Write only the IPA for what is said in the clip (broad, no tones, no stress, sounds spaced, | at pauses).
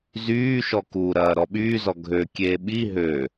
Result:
z yː ʃ ɔ k u ɾ ɐː ɾ ɔ ɓ yː z ɔ ɡʱ ø kʲ eː ɓ i ɦ ø